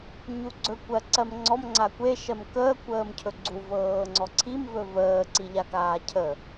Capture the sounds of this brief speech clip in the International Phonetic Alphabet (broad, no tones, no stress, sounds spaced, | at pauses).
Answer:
ɲ u ɡ͡ǀ ɵ kʷ ɜ ǀ ɜ m ŋ͡ǀ ɔ m ŋ͡ǀ a kʷ e ʃ ɜ m k əː kʷ əː m cʰ ɵ ɡ͡ǀ u v ɤː ŋ͡ǀ ɔ ǀʰ i m v ɵ v əː ǀ i ʎ a k aː cʰ ə